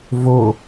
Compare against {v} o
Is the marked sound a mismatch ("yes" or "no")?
no